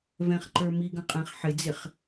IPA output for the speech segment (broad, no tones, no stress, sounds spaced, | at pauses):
v ɛ̃ χ ǃ ə˞ m i ɡ ə̃ qʼ ɛ̃ χ ħ ɪ d͡z ɪ χ